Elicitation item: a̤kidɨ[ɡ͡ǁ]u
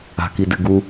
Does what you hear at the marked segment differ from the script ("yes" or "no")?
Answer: yes